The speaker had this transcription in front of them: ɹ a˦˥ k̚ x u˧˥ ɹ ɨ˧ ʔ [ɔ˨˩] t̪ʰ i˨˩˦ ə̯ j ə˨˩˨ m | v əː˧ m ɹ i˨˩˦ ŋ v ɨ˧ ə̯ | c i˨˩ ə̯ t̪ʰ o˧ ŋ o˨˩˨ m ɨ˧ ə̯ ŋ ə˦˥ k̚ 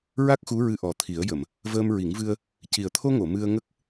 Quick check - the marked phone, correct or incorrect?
correct